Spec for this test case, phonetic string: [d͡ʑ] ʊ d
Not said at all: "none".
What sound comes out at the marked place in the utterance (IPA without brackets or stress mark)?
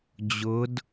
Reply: d͡ʑ